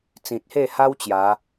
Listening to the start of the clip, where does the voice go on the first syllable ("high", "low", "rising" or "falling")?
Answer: low